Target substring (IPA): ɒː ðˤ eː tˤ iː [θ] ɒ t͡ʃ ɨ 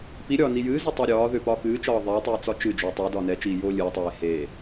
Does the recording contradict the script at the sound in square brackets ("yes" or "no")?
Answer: yes